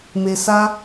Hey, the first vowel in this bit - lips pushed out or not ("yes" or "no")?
no